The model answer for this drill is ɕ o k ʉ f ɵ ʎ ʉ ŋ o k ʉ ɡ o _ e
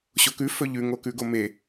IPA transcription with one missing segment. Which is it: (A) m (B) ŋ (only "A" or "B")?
A